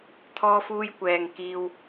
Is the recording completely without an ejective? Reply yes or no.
yes